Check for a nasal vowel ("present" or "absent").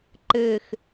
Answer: absent